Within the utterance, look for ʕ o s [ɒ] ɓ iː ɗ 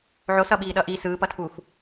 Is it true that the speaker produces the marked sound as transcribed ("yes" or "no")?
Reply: no